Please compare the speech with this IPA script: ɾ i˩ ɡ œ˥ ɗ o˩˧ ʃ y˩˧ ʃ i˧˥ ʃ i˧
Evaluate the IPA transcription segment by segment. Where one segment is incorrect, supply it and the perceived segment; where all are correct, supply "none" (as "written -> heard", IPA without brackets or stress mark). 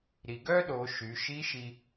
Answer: none